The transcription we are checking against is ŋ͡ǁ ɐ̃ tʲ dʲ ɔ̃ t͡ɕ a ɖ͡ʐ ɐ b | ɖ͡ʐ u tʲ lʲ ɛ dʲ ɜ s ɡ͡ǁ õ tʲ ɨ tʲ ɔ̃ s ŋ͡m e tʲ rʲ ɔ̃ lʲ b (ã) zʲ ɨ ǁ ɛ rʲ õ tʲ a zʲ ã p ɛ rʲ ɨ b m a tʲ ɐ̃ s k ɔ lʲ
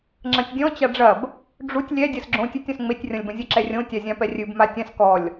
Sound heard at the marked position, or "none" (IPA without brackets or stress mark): ɐ̃